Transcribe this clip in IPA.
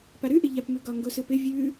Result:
p a ɾ ʉ ʔ ɪ ʎ a p m ʉ ɡ ɒ ŋ ɡ o s ɯ p ɪ vʲ ʉ

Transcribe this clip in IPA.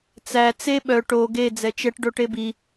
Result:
t͡s æ t͡s e ɓ œ ʈ o ɡ e d͡z ɛ t͡ʃ ɛ ʈ ɖ o ʈ e b i

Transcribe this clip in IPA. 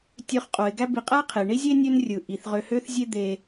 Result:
tʲ ø˨ χ qʼ o˩ ɪ̯ ɡ æ˦ b i˨ qʼ æ˥ qʰ e˩ ɳ i˥ zʲ e˥ nʲ ø˦ n rʲ ɯ˩ ʔ i˩ θ ʁ ø˨ h ø˦ θ zʲ e˦ d̪ e˨

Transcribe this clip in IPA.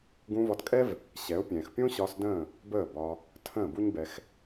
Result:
ɡ ũ˧ v ɒ˧ t kʼ ɛ˦ v | ɕ ɛ˨˦ ʊ̯ pʲ ɛ̃ː˨ x pʲ õ˦ ɕ ɒ˧ s d ə̃ː˦˨ | b əː˦˨ b ɒ˧ | tʰ ə̃ː˦˨ b u˦ ɲ b ɛ˧ x

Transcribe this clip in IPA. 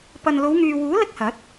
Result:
p ɐ˨ n l o˨˧ w ŋ yː˨ w uː˨˥ l ɪ˥ k̚ h ɐ˨˥ t̚

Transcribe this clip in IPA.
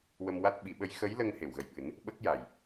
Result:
w ə˧ m w a˦˥ t̚ ɓ i˨˩˦ ɓ ə˧˥ j x ə˧˥ j l ə˧ ŋ h e˨˩˨ w ɣ ə˨˩ j ɓ ɨ˨˩˦ n | ɓ ə˦˥ k̚ j a˨˩ j

